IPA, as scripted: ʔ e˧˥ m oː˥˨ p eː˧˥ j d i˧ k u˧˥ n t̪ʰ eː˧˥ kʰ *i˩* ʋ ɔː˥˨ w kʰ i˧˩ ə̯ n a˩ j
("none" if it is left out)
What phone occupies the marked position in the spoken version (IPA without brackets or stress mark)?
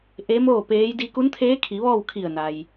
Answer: i˩˧